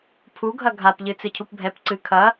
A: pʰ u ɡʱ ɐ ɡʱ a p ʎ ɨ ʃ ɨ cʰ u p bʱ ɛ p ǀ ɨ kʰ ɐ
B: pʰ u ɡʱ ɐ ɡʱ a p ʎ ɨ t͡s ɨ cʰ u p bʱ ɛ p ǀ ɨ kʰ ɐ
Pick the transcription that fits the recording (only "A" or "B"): B